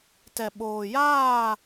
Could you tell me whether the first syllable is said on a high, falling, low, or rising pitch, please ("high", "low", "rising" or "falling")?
low